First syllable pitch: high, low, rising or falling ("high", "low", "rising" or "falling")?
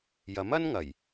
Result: rising